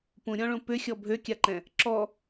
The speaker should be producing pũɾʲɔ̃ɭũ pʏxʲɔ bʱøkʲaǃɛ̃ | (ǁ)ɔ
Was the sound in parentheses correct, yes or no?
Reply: yes